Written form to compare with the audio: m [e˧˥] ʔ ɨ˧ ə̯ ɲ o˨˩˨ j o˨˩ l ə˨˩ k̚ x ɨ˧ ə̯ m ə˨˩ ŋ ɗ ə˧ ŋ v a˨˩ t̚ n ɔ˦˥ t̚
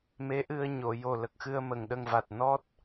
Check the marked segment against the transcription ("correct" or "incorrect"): correct